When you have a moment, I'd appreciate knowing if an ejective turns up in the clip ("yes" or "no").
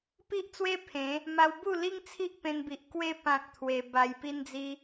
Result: no